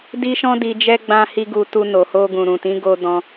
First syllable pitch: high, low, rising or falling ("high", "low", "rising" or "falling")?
high